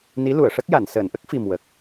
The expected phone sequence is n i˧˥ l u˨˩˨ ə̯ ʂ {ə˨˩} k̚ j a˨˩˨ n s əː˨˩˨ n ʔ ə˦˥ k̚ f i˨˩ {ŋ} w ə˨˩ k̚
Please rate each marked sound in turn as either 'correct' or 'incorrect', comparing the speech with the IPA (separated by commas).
incorrect, incorrect